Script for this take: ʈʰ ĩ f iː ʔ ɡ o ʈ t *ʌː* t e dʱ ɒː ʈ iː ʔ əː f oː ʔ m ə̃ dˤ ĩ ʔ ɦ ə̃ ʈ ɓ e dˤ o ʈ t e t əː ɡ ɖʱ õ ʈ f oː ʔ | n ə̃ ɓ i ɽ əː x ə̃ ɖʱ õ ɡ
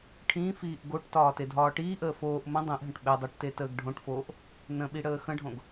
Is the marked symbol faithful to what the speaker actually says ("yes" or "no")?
no